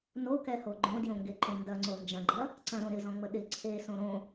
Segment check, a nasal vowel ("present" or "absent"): present